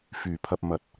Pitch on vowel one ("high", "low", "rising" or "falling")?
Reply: low